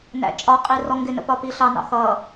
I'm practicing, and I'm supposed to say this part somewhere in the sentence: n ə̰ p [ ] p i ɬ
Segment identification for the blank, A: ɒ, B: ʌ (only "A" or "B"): A